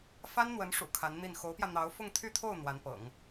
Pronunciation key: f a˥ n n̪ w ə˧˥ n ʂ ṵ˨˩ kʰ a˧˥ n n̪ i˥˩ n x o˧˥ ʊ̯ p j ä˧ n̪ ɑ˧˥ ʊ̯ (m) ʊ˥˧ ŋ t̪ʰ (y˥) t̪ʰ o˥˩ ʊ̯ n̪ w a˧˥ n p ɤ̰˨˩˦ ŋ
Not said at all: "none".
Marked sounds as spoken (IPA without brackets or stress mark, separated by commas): f, y˥˧